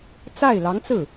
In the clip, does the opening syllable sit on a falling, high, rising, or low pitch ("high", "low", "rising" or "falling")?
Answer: falling